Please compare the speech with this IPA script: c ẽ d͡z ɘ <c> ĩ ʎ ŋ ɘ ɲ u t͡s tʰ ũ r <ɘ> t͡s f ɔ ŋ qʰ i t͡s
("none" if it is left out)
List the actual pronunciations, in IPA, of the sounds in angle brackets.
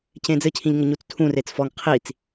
cʰ, e

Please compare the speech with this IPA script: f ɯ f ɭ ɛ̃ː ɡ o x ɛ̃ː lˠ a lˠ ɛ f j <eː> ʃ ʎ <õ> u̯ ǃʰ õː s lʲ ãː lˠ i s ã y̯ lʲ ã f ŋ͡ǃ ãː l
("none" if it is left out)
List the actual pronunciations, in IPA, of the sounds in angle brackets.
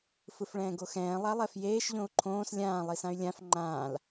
eː, õ

